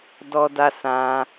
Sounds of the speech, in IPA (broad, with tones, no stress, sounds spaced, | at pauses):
d ɔ˦ d a˦ s ã˧